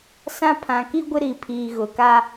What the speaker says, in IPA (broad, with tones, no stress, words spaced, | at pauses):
sã˦˨pʰã˨ki˦ɡʷɪ˦ ɾi˨pʰiː˨ɣʊ˨ ka˦